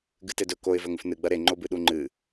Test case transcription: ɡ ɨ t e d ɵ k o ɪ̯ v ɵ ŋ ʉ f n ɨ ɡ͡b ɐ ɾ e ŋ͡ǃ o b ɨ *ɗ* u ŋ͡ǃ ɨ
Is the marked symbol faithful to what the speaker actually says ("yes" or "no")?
yes